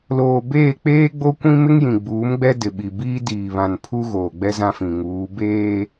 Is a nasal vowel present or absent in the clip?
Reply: present